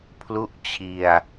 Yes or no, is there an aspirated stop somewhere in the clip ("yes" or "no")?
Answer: yes